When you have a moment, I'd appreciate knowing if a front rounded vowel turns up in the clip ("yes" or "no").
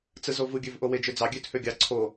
yes